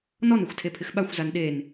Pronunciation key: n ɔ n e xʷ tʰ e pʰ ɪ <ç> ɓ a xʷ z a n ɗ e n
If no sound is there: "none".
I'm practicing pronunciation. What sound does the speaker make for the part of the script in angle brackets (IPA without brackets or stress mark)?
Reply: x